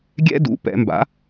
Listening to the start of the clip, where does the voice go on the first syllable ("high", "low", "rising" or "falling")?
high